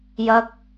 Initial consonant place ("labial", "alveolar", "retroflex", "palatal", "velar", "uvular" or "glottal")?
palatal